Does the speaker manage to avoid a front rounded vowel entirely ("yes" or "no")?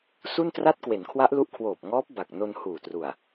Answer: yes